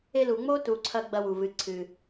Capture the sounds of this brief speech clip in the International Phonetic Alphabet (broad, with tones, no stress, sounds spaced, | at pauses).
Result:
e˦ l u˨ ŋ͡m o˥ t u˨ ǀʰ ɐ˥ ɡ͡b ɐ˦ w u˩ v ɨ˨ ǀʰ ɨ˩